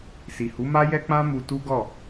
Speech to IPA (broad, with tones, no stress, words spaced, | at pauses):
si˨hu˨˦ma˦jɛ˦ k͡pã˦mu˧tu˦ɡɔ˦˨